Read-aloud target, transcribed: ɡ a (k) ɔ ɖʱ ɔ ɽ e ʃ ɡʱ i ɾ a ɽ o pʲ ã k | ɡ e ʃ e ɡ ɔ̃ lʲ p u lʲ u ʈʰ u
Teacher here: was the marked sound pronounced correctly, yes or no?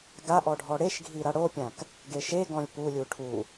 no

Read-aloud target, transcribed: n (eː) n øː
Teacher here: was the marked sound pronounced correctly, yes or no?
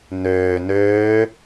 no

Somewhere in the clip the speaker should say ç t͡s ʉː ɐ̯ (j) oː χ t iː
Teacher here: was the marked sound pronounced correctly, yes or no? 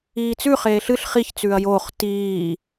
yes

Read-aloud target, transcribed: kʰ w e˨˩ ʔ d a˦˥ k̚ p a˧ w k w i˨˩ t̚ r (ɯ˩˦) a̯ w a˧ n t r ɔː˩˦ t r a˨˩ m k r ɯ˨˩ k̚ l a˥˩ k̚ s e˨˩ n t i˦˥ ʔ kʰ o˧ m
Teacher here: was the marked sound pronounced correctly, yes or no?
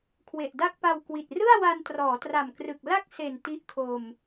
no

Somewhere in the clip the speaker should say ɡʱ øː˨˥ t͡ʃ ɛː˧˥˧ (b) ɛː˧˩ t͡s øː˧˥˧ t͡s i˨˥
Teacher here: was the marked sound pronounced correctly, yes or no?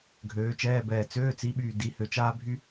yes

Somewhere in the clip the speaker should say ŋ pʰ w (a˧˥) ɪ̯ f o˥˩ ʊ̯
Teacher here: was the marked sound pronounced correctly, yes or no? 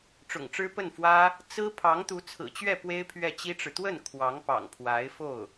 yes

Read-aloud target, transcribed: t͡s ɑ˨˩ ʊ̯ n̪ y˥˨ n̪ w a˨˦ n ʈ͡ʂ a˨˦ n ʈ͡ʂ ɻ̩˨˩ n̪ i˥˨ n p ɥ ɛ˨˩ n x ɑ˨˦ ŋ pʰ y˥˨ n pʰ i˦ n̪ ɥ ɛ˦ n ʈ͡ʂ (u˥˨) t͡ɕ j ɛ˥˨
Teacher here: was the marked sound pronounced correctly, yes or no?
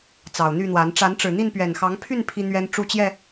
yes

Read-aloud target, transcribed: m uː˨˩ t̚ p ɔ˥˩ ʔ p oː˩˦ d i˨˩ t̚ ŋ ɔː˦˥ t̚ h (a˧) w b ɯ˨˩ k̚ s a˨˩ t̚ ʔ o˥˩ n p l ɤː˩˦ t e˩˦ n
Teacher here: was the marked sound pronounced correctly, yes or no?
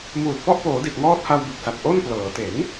yes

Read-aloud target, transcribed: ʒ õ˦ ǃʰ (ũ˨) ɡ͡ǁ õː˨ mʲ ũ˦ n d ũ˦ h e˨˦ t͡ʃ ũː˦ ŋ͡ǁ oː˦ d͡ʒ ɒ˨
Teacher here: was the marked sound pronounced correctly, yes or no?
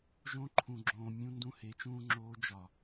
yes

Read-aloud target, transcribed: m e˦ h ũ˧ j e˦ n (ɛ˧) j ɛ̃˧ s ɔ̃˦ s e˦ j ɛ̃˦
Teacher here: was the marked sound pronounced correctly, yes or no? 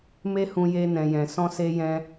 no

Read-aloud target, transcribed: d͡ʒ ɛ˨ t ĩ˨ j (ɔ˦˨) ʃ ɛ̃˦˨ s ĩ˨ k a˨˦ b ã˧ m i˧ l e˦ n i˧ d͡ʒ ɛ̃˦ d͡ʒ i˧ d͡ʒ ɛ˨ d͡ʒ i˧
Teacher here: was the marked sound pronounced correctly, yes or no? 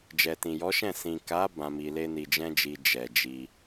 no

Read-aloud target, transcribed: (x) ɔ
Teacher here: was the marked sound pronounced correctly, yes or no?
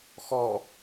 yes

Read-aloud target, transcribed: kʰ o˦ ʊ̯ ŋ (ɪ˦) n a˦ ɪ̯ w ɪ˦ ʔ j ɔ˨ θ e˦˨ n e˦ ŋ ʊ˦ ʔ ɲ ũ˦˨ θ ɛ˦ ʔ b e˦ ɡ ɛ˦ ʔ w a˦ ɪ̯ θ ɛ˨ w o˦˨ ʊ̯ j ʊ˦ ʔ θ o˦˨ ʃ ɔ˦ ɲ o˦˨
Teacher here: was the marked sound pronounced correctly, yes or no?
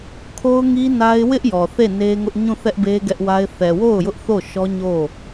no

